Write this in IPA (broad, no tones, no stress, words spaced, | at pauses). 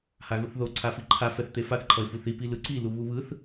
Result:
haɣuθðo ǀʰafiǃʰa fɛθt̪efaθ ǃʰʌɪ̯fuθi pilɯǀi luβuβɯθ